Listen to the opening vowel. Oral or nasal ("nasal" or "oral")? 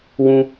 nasal